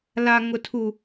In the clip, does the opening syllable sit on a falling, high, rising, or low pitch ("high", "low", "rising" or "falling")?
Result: high